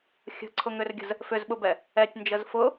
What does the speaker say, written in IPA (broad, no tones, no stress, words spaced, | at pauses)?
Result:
xʲə̤ǀʰʊŋʏrɡʲə̤z | fʏzɓʊbɛ | ɛtʲnd͡ʒəz fʊ